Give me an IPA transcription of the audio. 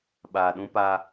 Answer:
ɓ aː˨ ɗ ũ˦ p a˦

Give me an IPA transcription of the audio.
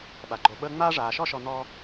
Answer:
ɓ a˩ ɡ͡ǃ o˨ ɓ əː˥ ŋ͡m aː˦ ʐ aː˩ ʃ ɔ˦ ʃ ɔ˨ n̪ ɔ˦

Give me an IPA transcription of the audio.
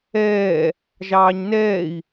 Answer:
ɛː | ʒ ɑː ɲ n ɛː i̯

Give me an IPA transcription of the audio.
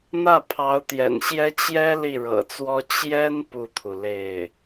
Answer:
n̪ ä˥˩ pʰ ɑ˧˥ ʊ̯ t̪ j ɛ̰˨˩ n ɕ j ɛ˥ t͡ɕ j ɛ˥ l i˥˩ ɻ ɤ̰˨˩ t͡s w ɔ˥ t͡ɕ j ɛ˥ n p u˥˩ t̪ʰ u˩ l e˥˩ ɪ̯

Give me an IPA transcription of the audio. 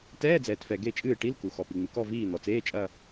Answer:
t ɛː˧˥˧ d͡z ɛː˩ t f ɛ˩ ɡ e˦˨ t͡ʃʼ ɨː˦˨ ʈ i˧˥˧ l k u˩ x ɔ˩ p i˩ ŋ͡m ɨ˩ k ɔ˦˨ v iː˦˨ n̪ ɔ˩ t͡s eː˧˥˧ t͡ʃʼ ɐ˦˨

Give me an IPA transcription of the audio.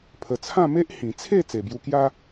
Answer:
pʰ ə˨˩ t͡sʰ ã˥˧ m e˦ ʔ h ĩ˨˩ t͡sʰ e˥˧ t͡s e˨˩ b j u˧ k j a˦

